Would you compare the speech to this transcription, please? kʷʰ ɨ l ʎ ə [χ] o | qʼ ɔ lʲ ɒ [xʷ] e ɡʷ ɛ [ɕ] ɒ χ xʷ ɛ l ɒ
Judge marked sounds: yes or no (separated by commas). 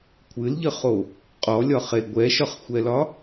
yes, no, no